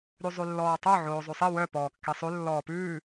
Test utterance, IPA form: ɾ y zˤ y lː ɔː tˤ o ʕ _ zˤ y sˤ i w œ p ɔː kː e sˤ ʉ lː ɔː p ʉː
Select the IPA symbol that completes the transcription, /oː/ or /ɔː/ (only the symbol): oː